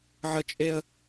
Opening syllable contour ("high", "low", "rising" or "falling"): high